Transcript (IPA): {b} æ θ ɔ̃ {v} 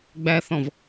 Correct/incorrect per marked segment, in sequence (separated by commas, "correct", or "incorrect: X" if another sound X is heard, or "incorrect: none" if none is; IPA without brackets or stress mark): incorrect: ɡ͡b, correct